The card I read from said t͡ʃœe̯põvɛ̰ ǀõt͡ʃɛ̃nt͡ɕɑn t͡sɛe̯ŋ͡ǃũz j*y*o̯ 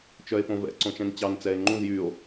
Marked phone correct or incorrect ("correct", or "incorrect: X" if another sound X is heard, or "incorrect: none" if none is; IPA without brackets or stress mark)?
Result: correct